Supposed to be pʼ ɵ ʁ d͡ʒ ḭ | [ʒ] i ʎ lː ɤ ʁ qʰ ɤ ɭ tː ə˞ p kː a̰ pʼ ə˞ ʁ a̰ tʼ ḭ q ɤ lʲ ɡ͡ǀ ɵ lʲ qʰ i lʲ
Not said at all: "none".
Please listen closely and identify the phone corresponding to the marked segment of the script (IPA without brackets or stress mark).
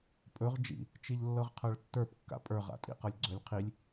t͡ʃ